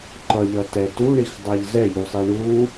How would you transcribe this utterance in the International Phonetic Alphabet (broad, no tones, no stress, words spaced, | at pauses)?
ǃʌʎʌtɛ tuɳixdˤaʎ zɛʎusˤi ɳu